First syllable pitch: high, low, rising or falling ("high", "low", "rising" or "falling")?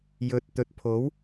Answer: low